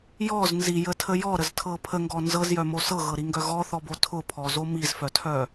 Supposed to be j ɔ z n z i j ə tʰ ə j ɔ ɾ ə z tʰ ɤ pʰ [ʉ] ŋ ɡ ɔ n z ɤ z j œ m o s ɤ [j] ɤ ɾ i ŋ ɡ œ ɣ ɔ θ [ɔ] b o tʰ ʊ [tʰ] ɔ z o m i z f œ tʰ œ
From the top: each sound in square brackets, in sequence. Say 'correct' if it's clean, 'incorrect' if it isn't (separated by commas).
incorrect, incorrect, correct, incorrect